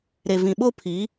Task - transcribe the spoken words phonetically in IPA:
ɾ e˨ v ĩ˨ ɓ o˦ pʰ i˨˦

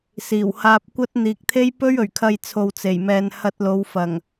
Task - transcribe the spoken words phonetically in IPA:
s iː˨˩ w h aː˧ p̚ kʷ ɐ˥ t̚ n̪ iː˨ k̚ t̪ʰ e˥ j p ɵ˥ ɥ ɵ˨˩ ɥ kʰ ɐ˧ j t͡sʰ o˨ w t͡s e˨˩ j m ɛː˨ n h ɐ˧ t̚ l o˨˧ w f ɐ˨˩ ŋ

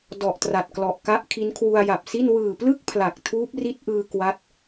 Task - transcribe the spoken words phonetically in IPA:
d ɔ˨˩ ʔ t r a˨˩ t̚ k l ɔ˨˩ ʔ k a˦˥ ʔ kʰ i˦˥ n kʰ w u˧ a̯ j a˨˩ p̚ s i˥˩ n w ɯː˨˩ p l ɯ˥˩ k̚ pʰ l a˨˩ k̚ tʰ uː˦˥ p̚ r i˦˥ t̚ ʔ ɯː˧ k w a˦˥ t̚

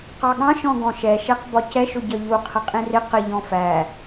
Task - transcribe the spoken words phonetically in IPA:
q ɑ ɠ ɑ̃ ʃ ɔ̃ ɡ ɔ̃ ʃ ɛ ʃ ɛ q b ɒ c ɛ ʃ ʊ ɟ ʌ ʎ u qʰ ə qʼ ĩ r ɪ q ɪ ʎ ɔ̃ f æ

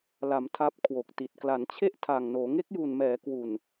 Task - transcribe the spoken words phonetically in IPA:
l a˩˦ m tʰ a˦˥ p̚ kʰ w o˨˩ k̚ t i˨˩ t̚ k l a˩˦ n t͡ɕʰ e˥˩ ʔ tʰ aː˨˩ ŋ n oː˩˦ ŋ e˦˥ k̚ j u˨˩ n m ɛː˩˦ k w u˨˩ n

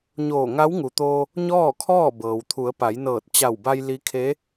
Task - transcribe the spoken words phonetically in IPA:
ɲ oː˧˩ ŋ a˧˥ w ŋ u˩ t̪ oː˧ | ɲ ɔː˥˨ kʰ ɔː˥˨ b ɤː˩ w t̪ʰ u˩˧ ə̯ p a˩˧ j n ɤː˧˩ t̚ t͡ɕ a˧˩ w b a˧ j l i˧˥ kʰ e˧˥

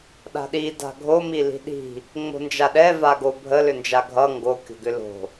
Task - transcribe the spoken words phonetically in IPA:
ɗ a̤ ɗ i d a̤ ɡʱ o m i l i̤ ɗ i̤ | ŋ͡m o̤ n d͡ʒ a ɗ ɛ v a ɡ o bʱ ə l ʏ n d͡ʒ a ɡʱ ʌ ŋ ɡ o kʲ o̤ ɡ ʏ l o̤

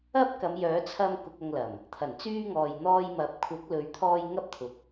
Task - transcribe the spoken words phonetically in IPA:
ɐ˥ p̚ k ɐ˨˧ m j œː˨˥ t͡sʰ ɐ˧ m k ʊ˧ k̚ ɐ˧ ŋ l ɐ˨˩ m | t̪ʰ ɐ˨˩ n t͡s yː˧ ŋ ɔː˨ j n̪ ɔː˧ j m ɐ˨˥ p̚ kʷʰ ɐ˨˥ k̚ l ɵ˨˧ ɥ t̪ʰ ɔː˧ j ŋ ɐ˥ p̚ t̪ʰ ʊ˨˥ k̚

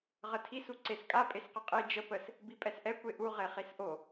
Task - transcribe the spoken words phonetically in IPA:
ʁ ə tʰ i s u ǀ e s kʼ a pʼ e s q ə qʼ i d͡ʒ ə p ə s | b i pʼ ɛ s ʔ ɛ kʷ e ʔ u ʁ e χ i s ʔ o

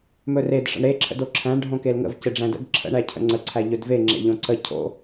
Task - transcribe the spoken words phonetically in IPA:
m ɵ r e d ʂ ə̰ ɳ ɾ e ǁʰ ə̰ d o ǁʰ æ̃ ɳ ɖʱ õ k e l ŋ ə̰ v c e ɖ͡ʐ æ̃ d ə̰ ɡ ǁʰ ə̰ ɳ æ cʰ ə̰ ŋ͡ǀ ə ǀʰ æ ʎ ɵ d v e ŋ͡ǁ ḛ ʎ õ ǀ ə cʰ o̰

